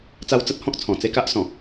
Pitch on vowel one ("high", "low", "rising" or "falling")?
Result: high